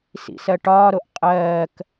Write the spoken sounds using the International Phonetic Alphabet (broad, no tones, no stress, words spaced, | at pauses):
sḭsɜʈɒːɾoʔ qʼɜːk